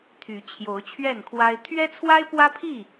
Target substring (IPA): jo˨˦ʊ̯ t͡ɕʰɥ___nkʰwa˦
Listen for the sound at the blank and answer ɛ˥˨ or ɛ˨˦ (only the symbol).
ɛ˥˨